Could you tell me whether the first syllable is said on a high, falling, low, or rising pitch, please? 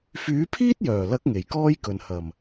rising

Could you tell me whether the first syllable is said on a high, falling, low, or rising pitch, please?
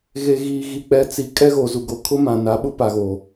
low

